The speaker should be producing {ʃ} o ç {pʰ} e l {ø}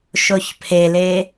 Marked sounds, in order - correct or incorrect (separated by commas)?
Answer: correct, correct, incorrect